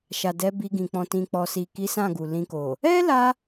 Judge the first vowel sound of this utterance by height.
low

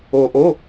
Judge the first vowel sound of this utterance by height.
mid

